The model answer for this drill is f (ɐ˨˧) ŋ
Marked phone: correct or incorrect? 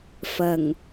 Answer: incorrect